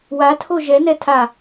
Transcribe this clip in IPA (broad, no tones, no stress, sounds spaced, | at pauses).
w a tʰ o ʒ ɛ n ɛ tʰ a